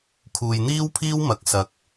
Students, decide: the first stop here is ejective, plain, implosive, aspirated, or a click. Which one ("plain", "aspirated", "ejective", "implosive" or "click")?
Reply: aspirated